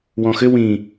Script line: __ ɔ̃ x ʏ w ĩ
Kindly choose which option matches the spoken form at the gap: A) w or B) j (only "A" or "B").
A